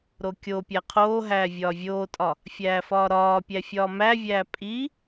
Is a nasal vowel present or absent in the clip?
absent